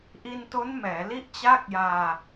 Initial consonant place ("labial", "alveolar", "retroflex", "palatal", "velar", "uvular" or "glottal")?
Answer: glottal